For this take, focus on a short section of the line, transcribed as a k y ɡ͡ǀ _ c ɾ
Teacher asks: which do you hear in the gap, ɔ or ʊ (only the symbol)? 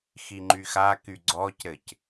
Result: ɔ